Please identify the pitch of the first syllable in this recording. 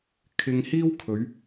high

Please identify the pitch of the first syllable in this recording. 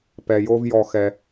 low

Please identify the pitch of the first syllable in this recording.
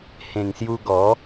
low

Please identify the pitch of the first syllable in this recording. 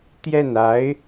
falling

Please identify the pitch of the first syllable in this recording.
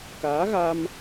rising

